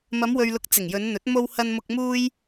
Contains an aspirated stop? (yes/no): no